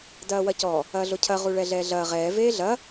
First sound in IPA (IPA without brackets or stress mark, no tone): d